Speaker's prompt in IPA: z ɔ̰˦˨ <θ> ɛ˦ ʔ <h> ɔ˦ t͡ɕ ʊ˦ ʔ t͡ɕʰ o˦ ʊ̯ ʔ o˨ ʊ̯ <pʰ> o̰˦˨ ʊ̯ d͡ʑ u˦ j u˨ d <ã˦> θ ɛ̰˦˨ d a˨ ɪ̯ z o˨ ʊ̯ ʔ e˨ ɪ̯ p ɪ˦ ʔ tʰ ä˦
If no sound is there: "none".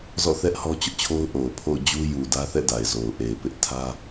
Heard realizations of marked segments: θ, h, pʰ, ä˦

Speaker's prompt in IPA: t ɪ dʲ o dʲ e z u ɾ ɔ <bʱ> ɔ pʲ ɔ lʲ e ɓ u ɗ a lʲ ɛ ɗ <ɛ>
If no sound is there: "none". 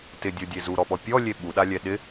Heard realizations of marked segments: ɓ, ɪ

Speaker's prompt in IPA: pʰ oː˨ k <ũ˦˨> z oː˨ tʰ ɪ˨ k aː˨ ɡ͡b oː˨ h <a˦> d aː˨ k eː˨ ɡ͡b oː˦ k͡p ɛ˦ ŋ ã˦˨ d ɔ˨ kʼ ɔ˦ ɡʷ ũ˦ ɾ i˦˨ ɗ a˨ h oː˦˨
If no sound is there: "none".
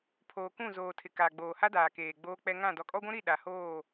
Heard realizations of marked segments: ũ˦˨, a˦

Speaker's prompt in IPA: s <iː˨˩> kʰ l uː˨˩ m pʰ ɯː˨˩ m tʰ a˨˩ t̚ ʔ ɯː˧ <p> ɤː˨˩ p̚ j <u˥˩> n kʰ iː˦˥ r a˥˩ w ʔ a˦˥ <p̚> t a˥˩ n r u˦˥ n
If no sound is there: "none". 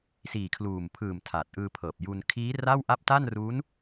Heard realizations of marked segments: iː˨˩, pʰ, u˧, p̚

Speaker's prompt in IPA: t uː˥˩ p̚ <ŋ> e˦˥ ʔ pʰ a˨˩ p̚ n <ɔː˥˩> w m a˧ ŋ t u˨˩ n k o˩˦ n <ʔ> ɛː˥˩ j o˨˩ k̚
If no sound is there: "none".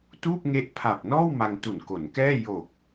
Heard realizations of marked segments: ŋ, ɔː˥˩, k

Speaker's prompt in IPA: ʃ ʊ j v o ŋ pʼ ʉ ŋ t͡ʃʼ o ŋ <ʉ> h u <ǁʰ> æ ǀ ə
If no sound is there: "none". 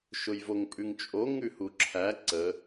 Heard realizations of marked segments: ʉ, ǁʰ

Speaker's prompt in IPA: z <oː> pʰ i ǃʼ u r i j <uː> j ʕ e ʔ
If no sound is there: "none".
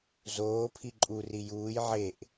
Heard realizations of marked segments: oː, uː

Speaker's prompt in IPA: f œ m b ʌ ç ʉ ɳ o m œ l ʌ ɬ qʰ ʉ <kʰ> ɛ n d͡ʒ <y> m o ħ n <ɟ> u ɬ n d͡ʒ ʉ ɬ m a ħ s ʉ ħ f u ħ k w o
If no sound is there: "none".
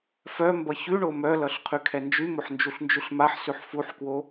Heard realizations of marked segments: kʰ, y, d͡ʒ

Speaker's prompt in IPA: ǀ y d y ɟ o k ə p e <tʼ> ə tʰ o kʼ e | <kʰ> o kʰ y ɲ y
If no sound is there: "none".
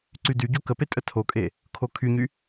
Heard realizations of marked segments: tʼ, kʰ

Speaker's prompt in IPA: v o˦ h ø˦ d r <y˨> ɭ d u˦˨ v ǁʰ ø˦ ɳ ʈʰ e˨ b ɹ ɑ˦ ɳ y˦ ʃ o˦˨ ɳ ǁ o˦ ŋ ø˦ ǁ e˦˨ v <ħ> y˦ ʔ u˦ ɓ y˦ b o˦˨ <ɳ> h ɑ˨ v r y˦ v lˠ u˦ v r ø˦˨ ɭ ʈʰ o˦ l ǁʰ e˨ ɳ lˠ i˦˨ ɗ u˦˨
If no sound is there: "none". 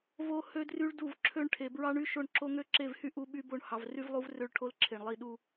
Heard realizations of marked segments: y˦, h, ɳ

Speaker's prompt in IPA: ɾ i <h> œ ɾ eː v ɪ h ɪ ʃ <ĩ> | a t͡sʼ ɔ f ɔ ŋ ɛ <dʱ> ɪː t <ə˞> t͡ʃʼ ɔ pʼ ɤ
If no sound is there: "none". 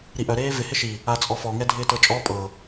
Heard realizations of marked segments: ʔ, i, dʱ, ɤ

